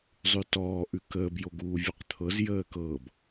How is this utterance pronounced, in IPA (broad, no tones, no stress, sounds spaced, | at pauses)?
zˤ ʉ t ɔː ʔ ʉ k əː b j o ɡ uː vʲ ʉ q t̪ʰ ɤ z j əː k ɤ b